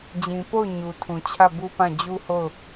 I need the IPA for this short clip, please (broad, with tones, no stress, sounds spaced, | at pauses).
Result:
d͡ʑ ĩ˨ p o˦˨ ʊ̯ ɲ u˨ tʰ ũ˨ t͡ɕʰ ä˦˨ b u˦ p ã˦˨ d͡ʑ u˦ h o˦˨ ʊ̯